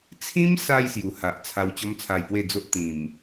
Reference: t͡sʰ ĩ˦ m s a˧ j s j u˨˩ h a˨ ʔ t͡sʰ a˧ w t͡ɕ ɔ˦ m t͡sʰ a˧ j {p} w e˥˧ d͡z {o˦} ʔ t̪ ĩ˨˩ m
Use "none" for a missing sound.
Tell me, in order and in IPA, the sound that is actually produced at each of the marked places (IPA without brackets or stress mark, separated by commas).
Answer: p, o˦